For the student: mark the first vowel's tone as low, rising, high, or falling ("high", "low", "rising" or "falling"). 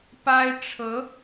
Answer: high